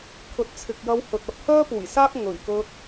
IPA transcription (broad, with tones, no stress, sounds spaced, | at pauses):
kʰ ɵ˨˥ t̚ t͡sʰ ɪ˨ k̚ j ɐ˧ w h ɵ˨ t̚ ɐ˧ p̚ h œː˥ p uː˨˩ j s aː˥ k̚ ŋ ɵ˨˩ ɥ k ɵ˧ t̚